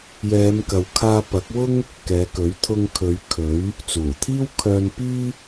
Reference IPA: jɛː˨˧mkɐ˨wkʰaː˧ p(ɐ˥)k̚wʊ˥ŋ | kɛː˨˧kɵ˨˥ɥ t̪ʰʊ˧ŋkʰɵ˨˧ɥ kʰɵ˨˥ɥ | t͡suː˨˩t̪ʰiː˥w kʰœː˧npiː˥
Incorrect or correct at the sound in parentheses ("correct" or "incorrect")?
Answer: incorrect